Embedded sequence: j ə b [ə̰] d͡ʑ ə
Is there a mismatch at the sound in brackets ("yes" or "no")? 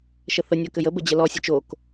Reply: yes